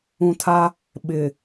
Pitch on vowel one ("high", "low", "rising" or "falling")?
low